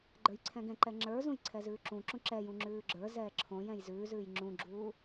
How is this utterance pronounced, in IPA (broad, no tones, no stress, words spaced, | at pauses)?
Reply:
ɡ͡ǃə˞jǀʰɛ̃ɡɛ̃ǃɛ ŋ͡ǁə˞zũj ǀʰɛzʉːǁũǁũ ǁɛjũ ŋ͡ǁʉːɡ͡ǁə˞zɛː ǁʰõj ɛ̃jzʉːzʉːj ŋ͡ǁũɡ͡ǁuː